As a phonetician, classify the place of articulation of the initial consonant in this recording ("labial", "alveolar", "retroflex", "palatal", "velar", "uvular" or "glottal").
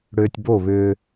retroflex